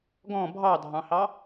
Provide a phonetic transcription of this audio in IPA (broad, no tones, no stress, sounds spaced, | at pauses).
ɡ ɔ̃ bʱ ɑ dʱ ɑ̃ h ɑ